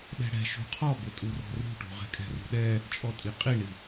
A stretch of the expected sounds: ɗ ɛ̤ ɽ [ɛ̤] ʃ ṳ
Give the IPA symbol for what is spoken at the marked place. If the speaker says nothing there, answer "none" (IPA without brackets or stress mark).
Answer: ɛ̤